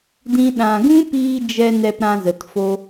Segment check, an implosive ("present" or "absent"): present